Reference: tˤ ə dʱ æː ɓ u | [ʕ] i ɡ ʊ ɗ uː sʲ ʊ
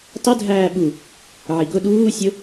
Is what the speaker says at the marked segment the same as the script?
yes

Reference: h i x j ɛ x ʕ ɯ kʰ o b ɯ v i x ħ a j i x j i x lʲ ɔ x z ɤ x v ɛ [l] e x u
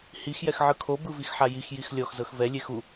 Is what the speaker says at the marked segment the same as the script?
no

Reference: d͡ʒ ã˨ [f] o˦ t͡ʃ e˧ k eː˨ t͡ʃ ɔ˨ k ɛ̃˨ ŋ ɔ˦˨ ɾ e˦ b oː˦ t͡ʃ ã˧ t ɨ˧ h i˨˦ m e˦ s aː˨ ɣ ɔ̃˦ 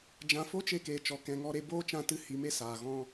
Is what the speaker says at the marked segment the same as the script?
yes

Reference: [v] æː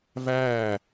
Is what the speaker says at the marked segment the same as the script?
yes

